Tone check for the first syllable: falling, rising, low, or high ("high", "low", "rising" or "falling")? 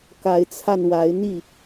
rising